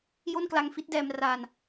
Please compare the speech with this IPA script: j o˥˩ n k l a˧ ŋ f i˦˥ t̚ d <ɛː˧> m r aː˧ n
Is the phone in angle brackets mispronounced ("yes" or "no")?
no